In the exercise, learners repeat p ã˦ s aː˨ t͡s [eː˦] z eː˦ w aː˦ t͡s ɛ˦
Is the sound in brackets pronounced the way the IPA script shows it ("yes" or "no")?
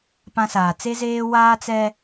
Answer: no